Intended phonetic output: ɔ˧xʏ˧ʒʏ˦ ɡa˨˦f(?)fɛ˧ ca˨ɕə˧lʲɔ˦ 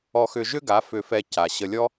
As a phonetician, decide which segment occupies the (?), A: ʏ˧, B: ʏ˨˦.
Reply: A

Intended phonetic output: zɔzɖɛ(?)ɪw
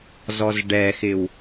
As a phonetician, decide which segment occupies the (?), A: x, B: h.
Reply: A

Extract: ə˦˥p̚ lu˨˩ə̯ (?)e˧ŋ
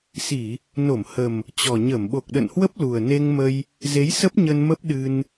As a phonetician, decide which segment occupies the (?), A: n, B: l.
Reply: A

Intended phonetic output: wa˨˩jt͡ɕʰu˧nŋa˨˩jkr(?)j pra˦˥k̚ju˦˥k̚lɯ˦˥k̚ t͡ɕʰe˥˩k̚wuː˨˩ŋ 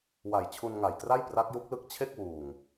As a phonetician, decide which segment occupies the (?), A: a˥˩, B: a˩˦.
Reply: A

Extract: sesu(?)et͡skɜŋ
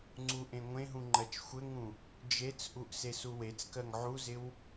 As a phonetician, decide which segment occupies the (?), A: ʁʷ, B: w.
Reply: B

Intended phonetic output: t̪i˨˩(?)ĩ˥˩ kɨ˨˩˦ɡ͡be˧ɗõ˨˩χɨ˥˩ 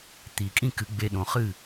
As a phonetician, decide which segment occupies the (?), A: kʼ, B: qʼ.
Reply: A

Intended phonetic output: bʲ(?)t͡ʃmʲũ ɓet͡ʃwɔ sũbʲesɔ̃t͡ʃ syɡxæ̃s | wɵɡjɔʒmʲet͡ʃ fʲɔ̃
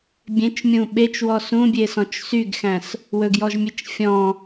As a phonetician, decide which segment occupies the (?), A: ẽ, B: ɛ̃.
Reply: A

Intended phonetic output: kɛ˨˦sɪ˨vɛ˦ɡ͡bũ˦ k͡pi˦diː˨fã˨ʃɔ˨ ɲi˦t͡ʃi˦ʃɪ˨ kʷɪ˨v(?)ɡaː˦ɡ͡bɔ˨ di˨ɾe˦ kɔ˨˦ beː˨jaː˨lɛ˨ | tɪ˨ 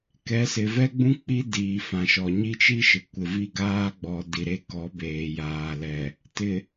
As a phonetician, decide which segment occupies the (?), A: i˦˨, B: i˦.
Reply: A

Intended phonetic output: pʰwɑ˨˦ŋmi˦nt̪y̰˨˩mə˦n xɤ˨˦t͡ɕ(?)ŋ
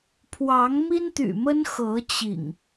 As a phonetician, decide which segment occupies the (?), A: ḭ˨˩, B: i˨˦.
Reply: A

